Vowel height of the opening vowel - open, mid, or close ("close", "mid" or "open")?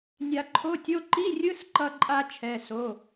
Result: open